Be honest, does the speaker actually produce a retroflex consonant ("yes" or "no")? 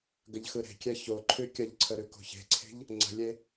no